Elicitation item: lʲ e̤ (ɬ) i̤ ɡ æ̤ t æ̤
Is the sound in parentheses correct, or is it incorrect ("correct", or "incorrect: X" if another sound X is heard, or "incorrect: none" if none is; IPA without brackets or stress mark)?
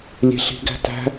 correct